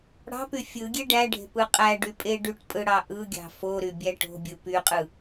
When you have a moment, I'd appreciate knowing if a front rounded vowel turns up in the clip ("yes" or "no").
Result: yes